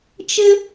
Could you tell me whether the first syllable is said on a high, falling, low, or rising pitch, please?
high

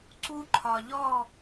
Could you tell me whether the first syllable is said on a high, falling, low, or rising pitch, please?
high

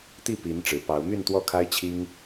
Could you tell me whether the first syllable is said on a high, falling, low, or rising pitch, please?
falling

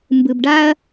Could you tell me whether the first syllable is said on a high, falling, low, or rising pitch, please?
low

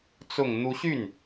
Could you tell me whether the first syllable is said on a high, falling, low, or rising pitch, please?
low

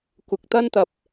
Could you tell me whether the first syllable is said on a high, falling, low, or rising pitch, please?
low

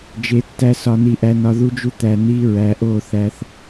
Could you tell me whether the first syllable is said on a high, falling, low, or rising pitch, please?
rising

